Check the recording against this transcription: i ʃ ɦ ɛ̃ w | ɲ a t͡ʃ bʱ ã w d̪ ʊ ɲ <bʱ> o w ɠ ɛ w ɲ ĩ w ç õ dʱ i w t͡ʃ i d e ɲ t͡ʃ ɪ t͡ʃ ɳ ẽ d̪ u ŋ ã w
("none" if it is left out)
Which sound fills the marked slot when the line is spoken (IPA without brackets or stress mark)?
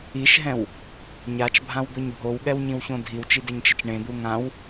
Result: bʱ